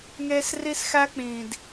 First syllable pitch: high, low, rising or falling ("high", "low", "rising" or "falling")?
high